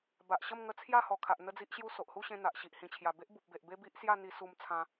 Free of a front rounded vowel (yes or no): yes